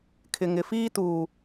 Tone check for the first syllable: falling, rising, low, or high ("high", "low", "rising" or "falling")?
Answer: low